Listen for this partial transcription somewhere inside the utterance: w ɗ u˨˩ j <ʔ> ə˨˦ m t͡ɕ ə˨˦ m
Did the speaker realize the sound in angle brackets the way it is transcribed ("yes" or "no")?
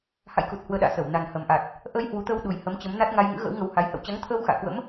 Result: no